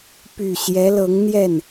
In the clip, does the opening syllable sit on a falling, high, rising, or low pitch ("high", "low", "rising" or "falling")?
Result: low